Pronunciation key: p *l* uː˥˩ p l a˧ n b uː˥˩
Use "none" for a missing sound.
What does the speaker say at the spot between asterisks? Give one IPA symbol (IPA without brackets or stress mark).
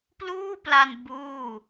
l